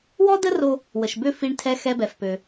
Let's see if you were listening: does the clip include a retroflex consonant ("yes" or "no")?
yes